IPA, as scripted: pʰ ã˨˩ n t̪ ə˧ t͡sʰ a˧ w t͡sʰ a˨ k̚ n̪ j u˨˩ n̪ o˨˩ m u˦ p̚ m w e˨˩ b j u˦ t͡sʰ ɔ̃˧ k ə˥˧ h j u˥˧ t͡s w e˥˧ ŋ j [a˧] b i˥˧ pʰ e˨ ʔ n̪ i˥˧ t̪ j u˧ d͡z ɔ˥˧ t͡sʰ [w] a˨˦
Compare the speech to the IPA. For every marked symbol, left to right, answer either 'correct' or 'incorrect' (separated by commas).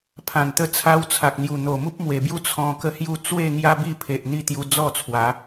incorrect, correct